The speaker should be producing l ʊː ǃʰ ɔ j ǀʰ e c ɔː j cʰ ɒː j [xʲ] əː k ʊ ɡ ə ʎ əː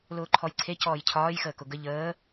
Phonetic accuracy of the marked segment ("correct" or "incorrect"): incorrect